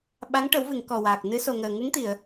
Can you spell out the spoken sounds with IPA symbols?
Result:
ɓa˧˥ŋ ʈə˨˩˦wvɨ˨˩˨ŋ kɔ˨˩waː˨˩k̚nɨ˧˥ so˨˩ŋəː˨˩ ŋɨ˧˥ŋt̪i˨˩˨ə̯

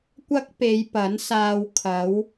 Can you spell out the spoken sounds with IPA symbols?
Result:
kʷɐ˥k̚pe˨˧j pɐ˨˥nsaː˧w kʰɐ˨˥w

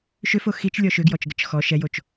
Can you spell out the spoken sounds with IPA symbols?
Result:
ʃʏfo xit͡ʃlʲɔ ʃʏɡjɔt͡ʃɡət͡ʃ xɔ ʃɛjot͡ʃ

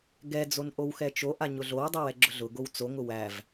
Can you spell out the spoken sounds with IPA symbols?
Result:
ɡɛ d͡zonʔowxɛt͡ʃo ʔaɲʊɮow dˤɛwɛɡ͡ǁʊɮʊ ɡowt͡so ŋʊwæv

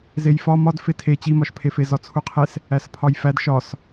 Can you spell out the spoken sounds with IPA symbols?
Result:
zejfɒ mɒd fetʰe t͡ɕimɒʃpʰefe zɒt͡sʰuqʰes | æspʰɒjfæd ʃɒs

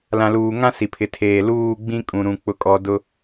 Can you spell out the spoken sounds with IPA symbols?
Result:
lã˨luː˨ŋã˦ si˨pʰɪ˨tʰeː˨ luː˦˨ɡ͡bĩ˦ kʼũ˨ɾũ˨ k͡pʊ˦kʼɔ˦ dʊ˦

